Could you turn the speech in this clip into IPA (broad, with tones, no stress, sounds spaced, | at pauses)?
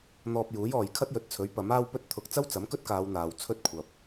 n̪ ɔː˧ p̚ j uː˨˥ j ɔː˨ j kʰ ɐ˥ t̚ j ɵ˨˥ t̚ t͡sʰ ɵ˨˥ ɥ p ɐ˨˥ m aː˥ w p ɵ˥ t̚ t̪ʰ ʊ˧ k̚ t͡s ɐ˥ w t͡s ɐ˨˥ m k ɵ˥ t̚ k aː˨˧ w n̪ aː˨˧ w t͡sʰ ɵ˥ t̚ kʷʰ ɐ˨ p̚